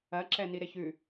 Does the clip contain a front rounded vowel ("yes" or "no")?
no